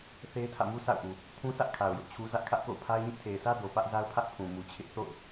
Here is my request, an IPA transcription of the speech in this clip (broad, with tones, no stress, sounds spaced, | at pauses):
θ e˦ ɪ̯ tʰ ä̰˦˨ m u˦ sʰ a̰˦˨ ʊ̯ ʔ u˨ | pʰ ũ˦ sʰ ä˦ ʔ kʰ a˨ ʊ̯ j ʊ˦ ʔ t͡ɕʰ u˦ z ä˦ ʔ kʰ ä˦ ʔ k o̰˦˨ ʊ̯ pʰ a˦ ɪ̯ ɲ ɪ˦ ʔ tʰ e˨ ɪ̯ sʰ ä˦ d o˨ p ä˦ ʔ z a˦ ʊ̯ pʰ ä˦ ʔ pʰ ũ˨ m u˨ t͡ɕʰ ɪ˦ ʔ θ o̰˦˨ ʊ̯